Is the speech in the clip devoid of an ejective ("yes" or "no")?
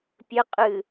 no